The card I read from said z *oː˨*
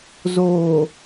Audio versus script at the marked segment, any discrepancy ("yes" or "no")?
no